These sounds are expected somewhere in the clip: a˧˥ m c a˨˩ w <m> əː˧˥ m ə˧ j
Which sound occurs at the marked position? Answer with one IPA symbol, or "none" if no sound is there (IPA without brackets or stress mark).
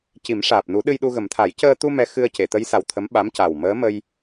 m